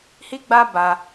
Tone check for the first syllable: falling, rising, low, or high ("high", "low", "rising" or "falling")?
high